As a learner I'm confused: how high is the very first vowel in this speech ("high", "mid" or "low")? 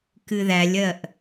high